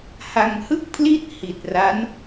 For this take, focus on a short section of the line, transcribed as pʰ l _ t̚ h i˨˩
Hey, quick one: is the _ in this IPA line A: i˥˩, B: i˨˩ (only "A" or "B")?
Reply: A